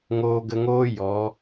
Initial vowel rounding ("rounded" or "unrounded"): rounded